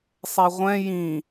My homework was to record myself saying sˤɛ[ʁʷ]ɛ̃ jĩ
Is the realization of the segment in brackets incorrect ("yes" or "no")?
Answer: no